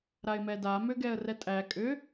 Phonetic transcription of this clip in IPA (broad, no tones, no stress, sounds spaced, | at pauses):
ɾ a ɪ̯ m ɛ d a m ʏ ɡ ɛ ə̯ r ɛ tʼ æ kʼ ʏ